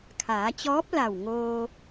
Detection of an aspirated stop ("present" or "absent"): present